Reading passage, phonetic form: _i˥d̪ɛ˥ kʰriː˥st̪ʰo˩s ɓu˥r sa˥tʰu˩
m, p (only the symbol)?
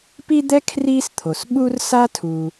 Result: p